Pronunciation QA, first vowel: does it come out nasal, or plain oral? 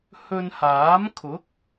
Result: oral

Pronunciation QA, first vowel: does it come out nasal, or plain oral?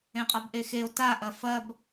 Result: nasal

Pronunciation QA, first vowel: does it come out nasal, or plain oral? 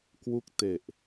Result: oral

